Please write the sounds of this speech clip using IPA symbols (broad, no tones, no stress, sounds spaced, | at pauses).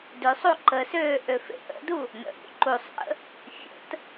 d ø sˤ u ǃ ə s øː ʔ ø f ḛ ʔ ə̰ d u | n ə̰ ɾʲ ṵ ǃ u sˤ ʔ ə̰ | fʲ ə̰ t